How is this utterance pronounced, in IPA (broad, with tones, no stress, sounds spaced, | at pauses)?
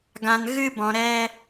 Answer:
ɡ ã˧ n ɣ ɨ˦ b ɔ̃˧ ɾ ɛ˦